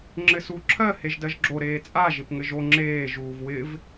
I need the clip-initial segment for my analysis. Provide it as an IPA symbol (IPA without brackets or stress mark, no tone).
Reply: ŋ͡ǁ